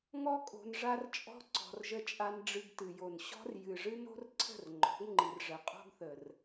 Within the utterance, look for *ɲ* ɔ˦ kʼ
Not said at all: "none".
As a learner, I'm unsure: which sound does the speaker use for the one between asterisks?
ŋ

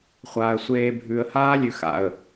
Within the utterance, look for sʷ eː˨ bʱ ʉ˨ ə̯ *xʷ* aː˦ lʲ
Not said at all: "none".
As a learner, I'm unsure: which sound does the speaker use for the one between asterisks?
h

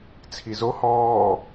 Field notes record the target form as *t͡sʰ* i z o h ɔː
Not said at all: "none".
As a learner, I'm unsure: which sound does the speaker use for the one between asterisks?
t͡sʰ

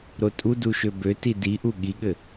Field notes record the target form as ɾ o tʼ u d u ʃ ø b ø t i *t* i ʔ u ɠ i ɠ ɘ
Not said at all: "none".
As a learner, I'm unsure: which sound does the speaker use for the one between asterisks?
d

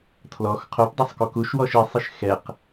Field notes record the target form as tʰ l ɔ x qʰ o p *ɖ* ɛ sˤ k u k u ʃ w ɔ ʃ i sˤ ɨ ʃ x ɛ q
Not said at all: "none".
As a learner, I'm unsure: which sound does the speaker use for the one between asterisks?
dˤ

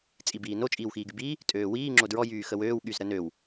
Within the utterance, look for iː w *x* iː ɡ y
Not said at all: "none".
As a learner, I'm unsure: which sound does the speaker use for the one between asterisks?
x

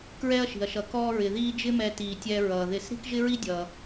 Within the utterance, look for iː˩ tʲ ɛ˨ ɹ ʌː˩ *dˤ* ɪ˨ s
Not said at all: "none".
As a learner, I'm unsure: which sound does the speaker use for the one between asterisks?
ð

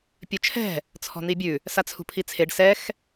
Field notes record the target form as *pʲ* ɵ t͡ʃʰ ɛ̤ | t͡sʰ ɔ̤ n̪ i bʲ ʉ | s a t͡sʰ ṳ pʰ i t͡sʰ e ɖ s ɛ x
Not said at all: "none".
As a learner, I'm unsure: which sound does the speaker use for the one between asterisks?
pʲ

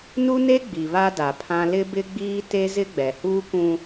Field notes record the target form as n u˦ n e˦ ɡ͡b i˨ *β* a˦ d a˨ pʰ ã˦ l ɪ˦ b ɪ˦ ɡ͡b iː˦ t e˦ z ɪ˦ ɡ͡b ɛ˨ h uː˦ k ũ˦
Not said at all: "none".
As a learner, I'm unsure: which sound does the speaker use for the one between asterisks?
β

